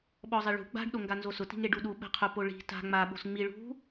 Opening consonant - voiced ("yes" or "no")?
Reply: yes